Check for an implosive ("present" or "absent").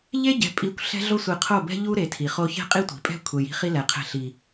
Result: absent